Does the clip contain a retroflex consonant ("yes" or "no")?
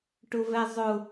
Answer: yes